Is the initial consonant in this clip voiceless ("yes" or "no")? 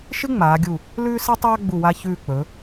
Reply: yes